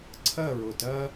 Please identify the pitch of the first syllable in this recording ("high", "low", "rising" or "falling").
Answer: falling